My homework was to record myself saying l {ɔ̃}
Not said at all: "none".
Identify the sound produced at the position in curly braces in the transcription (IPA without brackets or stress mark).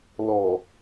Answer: ɔ